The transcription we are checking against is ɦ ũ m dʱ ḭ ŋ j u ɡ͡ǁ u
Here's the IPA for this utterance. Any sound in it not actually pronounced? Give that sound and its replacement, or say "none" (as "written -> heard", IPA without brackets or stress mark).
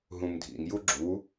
none